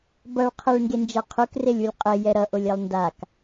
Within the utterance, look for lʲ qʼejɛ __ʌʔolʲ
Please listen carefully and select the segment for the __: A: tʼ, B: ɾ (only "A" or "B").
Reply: B